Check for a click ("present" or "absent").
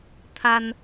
absent